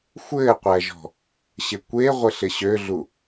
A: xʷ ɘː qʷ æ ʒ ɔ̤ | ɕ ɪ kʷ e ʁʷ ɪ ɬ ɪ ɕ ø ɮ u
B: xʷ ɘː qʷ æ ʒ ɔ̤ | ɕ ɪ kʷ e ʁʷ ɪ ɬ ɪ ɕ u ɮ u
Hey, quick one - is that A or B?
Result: A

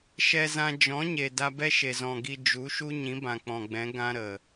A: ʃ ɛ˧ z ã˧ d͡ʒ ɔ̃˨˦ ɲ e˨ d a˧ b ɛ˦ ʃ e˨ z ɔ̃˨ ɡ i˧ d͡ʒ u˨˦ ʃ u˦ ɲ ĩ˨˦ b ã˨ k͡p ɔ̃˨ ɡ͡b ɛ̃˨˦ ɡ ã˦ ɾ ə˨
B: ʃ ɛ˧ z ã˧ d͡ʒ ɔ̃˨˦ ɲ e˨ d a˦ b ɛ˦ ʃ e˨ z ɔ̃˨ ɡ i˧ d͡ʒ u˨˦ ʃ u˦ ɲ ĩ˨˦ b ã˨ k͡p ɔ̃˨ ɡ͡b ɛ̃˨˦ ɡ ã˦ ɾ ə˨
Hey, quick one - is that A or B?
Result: A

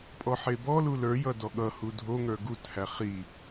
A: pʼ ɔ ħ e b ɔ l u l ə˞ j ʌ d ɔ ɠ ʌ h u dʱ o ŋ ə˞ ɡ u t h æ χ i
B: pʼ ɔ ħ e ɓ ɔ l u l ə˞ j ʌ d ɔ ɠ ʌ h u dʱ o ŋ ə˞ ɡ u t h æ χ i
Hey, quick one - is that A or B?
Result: A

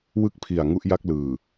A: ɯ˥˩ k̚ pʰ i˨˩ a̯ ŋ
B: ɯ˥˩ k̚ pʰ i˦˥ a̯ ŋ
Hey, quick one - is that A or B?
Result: A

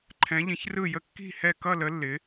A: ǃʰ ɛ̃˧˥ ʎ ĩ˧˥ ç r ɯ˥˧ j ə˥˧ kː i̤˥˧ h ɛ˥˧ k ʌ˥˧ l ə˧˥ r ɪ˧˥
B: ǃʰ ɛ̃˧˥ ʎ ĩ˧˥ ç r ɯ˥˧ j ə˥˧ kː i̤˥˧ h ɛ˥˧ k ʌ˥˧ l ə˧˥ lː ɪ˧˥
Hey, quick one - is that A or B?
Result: B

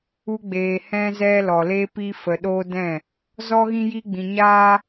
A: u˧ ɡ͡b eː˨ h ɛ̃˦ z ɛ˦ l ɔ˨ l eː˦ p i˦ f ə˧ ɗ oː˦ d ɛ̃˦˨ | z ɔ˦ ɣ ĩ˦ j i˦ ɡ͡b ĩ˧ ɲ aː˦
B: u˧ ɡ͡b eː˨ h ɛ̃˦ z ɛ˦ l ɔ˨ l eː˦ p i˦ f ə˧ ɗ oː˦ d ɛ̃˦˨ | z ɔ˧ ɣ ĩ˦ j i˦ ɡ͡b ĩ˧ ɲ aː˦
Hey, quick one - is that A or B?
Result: A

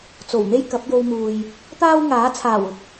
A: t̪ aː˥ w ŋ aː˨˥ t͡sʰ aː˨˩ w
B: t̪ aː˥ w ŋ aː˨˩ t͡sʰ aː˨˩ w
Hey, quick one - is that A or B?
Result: A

